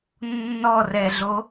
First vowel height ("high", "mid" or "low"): mid